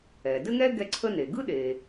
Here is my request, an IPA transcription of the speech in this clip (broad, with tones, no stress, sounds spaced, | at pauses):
ɛ˩ d ɘ˥ ŋ ɛ˥ ɡ ɛ˥ ǀʰ ə˥ n e˩ ɡ ɯ˥ ɗ e˩